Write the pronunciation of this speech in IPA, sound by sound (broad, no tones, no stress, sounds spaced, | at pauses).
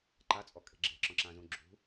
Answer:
ǃ a t͡sʼ ɔ kʼ e̤ ɡ͡ǁ e̤ ǁ ɔ̃ ǁ ã z ũ ɡ͡ǁ ṳ